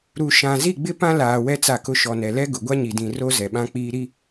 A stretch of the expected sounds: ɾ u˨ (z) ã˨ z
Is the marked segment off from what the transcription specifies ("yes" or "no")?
yes